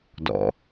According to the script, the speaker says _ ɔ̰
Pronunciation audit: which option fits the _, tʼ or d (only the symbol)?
d